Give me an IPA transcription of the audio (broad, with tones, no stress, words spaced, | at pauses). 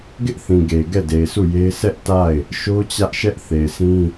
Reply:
ɡɪ˦ʔθĩ˨ɡe˨ ɡɛ˦˨de˨ɪ̯su˦˨je˦ɪ̯ sʰɛ˦ʔta˦˨ɪ̯ | ʃo˦t͡ɕä˦ʔʃɛ˦ʔ θe˨ɪ̯sʰĩ˦